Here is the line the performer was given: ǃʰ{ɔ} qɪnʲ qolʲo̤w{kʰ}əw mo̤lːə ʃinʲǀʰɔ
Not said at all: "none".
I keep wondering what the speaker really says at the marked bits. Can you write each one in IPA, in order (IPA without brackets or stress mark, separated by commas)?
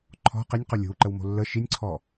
ɔ̤, ǃ